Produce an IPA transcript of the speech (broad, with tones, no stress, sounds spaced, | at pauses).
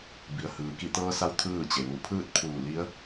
b i˩ ə̯ h ɯː˩ k i˧˩ t̪ ɤː˧ s a˧˥ w t̪ʰ ɯː˥˨ t͡ɕ e˩ ʋ u˧˩ pʰ ɯː˥˨ t̚ pʰ uː˧˩ l i˧˥ ə̯